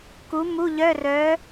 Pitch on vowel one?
rising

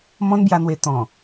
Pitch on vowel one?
high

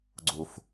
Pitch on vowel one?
low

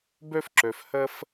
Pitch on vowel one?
high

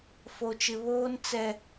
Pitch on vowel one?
low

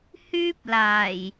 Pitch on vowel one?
high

